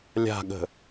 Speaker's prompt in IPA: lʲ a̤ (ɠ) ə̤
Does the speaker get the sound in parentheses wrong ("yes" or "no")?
no